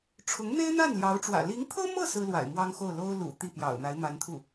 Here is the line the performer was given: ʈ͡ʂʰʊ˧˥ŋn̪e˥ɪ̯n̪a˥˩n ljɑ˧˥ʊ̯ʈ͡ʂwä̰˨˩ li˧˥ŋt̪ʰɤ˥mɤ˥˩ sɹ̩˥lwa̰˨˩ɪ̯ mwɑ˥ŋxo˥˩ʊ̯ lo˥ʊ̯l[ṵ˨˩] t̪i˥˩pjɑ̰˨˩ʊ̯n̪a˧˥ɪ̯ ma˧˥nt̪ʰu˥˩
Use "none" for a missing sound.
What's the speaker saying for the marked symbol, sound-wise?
ṵ˨˩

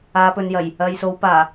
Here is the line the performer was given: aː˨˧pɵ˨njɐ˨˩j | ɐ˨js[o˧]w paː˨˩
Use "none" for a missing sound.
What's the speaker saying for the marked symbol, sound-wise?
o˨˧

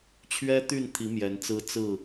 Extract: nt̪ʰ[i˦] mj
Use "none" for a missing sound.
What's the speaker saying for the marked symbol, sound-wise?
i˨˦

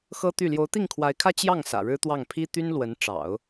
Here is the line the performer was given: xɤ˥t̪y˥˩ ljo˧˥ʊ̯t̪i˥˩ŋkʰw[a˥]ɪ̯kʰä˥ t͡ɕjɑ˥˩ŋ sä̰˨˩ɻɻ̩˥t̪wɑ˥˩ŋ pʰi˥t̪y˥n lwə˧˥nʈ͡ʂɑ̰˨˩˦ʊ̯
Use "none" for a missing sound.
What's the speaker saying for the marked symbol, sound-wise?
a˧˥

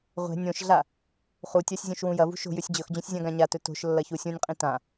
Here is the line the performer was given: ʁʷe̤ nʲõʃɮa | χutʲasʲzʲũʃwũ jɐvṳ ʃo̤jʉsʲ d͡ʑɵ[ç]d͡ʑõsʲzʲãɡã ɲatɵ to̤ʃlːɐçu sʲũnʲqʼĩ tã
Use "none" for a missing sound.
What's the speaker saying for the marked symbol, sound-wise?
x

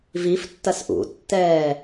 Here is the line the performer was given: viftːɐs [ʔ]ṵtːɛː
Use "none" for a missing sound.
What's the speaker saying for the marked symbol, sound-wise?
ʔ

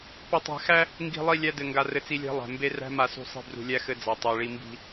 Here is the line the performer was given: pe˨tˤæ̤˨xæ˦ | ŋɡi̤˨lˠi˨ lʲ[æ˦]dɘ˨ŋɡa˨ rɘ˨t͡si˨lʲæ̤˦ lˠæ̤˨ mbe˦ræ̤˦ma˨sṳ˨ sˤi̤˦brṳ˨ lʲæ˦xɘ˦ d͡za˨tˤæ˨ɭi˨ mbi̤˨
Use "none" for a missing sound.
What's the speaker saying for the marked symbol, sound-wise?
æ˦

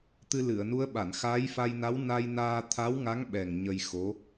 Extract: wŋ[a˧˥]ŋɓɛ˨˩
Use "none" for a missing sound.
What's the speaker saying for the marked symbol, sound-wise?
a˧˥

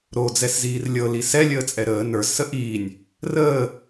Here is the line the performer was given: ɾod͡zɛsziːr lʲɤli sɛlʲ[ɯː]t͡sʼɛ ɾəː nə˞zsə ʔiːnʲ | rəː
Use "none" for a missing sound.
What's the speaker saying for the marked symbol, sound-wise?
əː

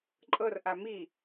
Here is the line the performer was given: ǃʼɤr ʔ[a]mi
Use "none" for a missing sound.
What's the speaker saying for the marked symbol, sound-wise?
a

